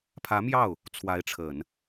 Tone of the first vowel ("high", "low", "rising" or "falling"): rising